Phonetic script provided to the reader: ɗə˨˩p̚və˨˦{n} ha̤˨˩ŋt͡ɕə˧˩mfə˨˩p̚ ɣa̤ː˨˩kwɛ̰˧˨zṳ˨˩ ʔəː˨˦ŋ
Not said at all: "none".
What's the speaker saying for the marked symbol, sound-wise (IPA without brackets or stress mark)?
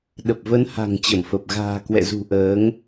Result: n